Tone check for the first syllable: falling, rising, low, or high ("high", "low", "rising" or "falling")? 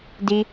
high